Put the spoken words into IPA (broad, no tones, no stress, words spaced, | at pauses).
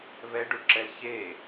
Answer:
βɛɖuɖǁɛl çe